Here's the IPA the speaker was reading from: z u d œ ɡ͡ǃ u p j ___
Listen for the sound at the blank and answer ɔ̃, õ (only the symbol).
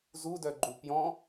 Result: ɔ̃